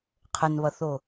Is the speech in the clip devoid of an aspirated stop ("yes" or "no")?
no